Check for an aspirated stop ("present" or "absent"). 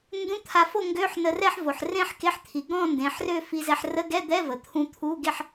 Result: present